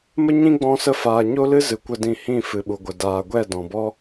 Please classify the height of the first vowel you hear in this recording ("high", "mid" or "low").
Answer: mid